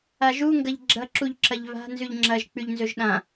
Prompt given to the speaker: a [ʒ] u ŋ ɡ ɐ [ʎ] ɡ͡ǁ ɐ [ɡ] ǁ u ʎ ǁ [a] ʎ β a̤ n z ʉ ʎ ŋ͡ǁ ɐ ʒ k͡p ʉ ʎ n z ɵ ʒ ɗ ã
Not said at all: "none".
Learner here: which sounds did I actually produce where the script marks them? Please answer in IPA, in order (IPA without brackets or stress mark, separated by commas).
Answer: ʒ, ʎ, none, ɐ